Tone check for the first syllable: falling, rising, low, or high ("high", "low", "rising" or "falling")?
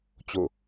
falling